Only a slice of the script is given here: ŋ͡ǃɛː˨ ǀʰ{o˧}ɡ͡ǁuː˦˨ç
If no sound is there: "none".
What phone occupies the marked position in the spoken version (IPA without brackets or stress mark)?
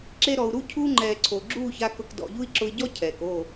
o˨